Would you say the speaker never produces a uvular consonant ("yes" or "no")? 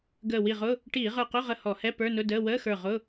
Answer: no